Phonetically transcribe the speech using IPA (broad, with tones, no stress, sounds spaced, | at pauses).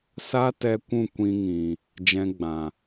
s a˦ t ɛ˧ kʷ ũ˦˨ kʷ ĩ˧ ŋ ĩ˨ | d͡ʒ ɛ̃˧ ɡ͡b ã˨